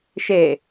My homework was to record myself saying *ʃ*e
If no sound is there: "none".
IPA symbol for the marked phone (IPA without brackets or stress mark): ʃ